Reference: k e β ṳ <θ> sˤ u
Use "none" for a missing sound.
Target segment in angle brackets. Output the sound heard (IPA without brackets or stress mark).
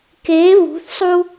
θ